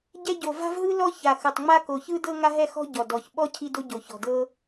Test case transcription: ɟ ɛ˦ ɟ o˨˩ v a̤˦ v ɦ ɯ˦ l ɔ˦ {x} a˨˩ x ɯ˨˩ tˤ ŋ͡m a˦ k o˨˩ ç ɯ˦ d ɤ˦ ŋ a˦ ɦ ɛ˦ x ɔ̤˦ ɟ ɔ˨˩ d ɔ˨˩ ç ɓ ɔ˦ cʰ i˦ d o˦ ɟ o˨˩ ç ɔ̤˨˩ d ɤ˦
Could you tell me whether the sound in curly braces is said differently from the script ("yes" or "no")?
yes